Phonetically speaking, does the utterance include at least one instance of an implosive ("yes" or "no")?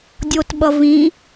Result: yes